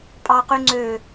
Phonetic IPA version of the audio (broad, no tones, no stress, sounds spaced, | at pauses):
pʼ ɑ q y ŋ͡ǀ ø